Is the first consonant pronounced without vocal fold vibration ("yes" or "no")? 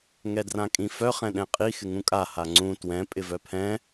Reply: no